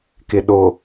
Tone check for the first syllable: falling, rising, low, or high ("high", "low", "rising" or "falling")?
low